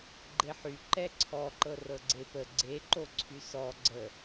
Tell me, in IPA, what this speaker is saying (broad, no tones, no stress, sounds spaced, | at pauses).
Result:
ɡ͡ǃ e ħ y ǃ ɛ ǀʰ ɔ ǃ ɤ r ɤ ɡ͡ǀ e p ə ɡ͡ǀ e ǃ o ǀʰ y s ɔ ɡ͡ǀ ə